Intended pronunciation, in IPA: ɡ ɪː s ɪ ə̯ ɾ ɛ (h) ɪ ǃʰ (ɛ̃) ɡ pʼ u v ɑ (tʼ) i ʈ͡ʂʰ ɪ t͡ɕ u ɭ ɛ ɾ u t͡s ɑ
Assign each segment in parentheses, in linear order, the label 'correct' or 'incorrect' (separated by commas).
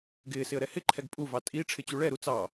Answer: correct, incorrect, correct